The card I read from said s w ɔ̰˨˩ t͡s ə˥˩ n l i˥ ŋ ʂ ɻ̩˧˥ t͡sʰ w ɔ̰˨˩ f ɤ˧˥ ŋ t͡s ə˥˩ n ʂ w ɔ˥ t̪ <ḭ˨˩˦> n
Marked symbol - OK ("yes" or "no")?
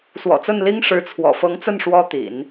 yes